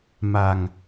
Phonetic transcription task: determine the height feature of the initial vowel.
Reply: low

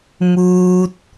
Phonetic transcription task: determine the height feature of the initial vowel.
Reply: high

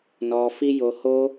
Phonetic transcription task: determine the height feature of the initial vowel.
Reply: mid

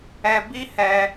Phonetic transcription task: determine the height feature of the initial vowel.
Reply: mid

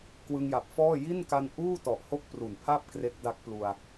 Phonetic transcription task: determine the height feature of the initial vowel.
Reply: high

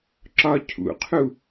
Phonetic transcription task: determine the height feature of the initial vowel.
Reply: low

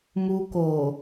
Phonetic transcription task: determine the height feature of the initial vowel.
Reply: high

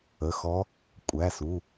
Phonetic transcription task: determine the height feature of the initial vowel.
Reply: mid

